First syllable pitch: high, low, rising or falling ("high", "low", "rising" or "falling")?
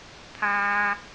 high